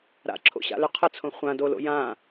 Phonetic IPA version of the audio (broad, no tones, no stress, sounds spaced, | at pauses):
ɾ a̰ ǁʰ o̰ ɕ a̰ l ʏ qʰ ə t͡sʰ õ χʷ ã d o l o̰ j ã